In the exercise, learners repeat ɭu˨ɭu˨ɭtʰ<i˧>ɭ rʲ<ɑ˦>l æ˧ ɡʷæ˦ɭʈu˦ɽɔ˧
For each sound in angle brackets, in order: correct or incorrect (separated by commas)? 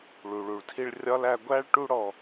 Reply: correct, incorrect